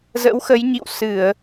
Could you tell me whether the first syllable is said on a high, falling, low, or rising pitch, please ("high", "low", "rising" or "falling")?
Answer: rising